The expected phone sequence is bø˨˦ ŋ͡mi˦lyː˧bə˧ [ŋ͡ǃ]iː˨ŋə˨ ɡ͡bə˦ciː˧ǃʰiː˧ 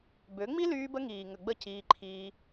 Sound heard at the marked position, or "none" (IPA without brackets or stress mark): ŋ